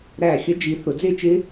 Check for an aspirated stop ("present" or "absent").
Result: absent